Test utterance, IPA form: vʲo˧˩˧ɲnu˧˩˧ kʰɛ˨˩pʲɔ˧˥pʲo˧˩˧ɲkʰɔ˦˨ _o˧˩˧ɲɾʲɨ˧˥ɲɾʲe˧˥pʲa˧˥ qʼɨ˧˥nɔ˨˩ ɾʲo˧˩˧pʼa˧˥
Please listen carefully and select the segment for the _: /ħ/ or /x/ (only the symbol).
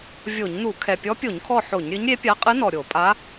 ħ